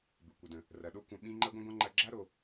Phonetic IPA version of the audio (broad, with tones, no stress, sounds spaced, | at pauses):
b ɪ˩ kʷ ə˩ d ə̃˩ | r ɐ˩ ɗ o˦ kʷ ɐ̃˨ ɓ ĩ˦ ŋ͡ǃ ɐ˥ ɡʷ ə̃˥ ɡʷ ɐ̃˥ ŋ͡ǃ ɐ˦ ɡ͡ǁ a˥ ɾ o˨